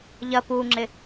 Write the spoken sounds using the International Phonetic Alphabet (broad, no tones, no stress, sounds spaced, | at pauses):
ʎ ɐ p u ŋ͡ǁ ɪ